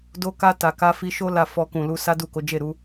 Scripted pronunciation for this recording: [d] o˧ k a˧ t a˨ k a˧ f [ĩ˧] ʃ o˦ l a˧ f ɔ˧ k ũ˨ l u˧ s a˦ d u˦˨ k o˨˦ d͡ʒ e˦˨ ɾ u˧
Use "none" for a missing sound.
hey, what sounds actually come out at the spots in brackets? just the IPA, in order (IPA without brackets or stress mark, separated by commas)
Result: d, i˧